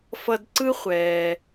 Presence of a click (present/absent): present